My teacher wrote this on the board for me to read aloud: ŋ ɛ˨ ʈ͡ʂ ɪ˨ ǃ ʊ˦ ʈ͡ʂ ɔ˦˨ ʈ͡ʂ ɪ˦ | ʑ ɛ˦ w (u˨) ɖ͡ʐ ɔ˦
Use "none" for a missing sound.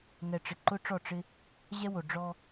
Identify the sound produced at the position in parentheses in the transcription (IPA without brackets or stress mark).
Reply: o˨